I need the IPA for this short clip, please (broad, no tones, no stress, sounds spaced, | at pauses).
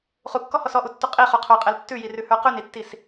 χ u kː ɔ h ɔ s ɔ ʔ u tː u qʼ i χ u qʰ ə˞ qʼ ɛ l tː ʉ j i r ʉ h ə˞ q ʉ n i tː i s